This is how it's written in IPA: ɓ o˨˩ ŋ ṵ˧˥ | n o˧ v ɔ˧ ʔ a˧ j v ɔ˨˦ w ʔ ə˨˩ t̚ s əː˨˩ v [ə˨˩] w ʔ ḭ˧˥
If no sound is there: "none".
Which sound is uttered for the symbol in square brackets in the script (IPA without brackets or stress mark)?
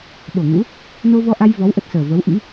ə˨˦